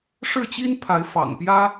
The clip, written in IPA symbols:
ʂ ɻ̩˥˩ t͡ɕ i˥ n pʰ a˧˥ ɪ̯ f ɑ̰˨˩ ŋ p j ä˥

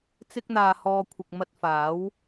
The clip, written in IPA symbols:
t͡s ɪ˥ k̚ n̪ aː˧ h ɔː˧ kʷʰ ɪ˨ k̚ m ɐ˧ t̚ f aː˨˥ w

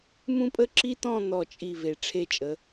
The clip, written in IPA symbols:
m ũ˥ pʼ ə˥ ǁ i˥ t̪ ɔ̃˥˧ n̪ ɔ˧˩ t͡ʃʼ i˧˩ v e˩˧ ʈ͡ʂʰ e˧˩ t͡ʃʼ ə˩˧

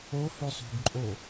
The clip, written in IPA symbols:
o h ʉ sˤ ṳ ɡ ǃʼ o

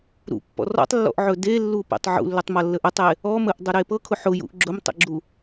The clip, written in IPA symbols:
ɾ ṵ pː ɔ̰ r ɔ̰ tˤ lː ɔ̰ ʔ ʕ ɵ d e lː u p ḛ tˤ ʕ ṵ lː ɵ tˤ m ʌ lː ə ʔ ɵ tˤ e | ɔ m ə ʔ dˤ ə ɾ e p ɤ kʰ ʊ ħ ʊ j ṵ ʔ ɡ͡ǁ ʊ m tˤ ḛ ɡ͡ǁ u

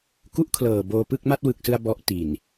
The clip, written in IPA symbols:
k u˥˩ ʔ kʰ l ɤː˨˩ b oː˧ p ɯ˥˩ k̚ m a˥˩ t̚ w ɯ˨˩ k̚ s ɯ˧ a̯ b ɔ˦˥ ʔ t i˨˩ n

